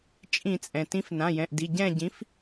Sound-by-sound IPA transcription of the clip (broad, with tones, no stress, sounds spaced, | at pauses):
t͡ʃʼ ĩ˧˩˧ t͡sʼ ɛ̃˩ t ĩ˨˥ f n ã˩˧˩ j ɛ̃˩˧˩ ʔ d i˩˧˩ ɟ ɛ̃˦˨ ɟ ĩ˨˥ f